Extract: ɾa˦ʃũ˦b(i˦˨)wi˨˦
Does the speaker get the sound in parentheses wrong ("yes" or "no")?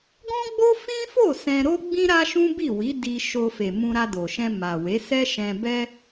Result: no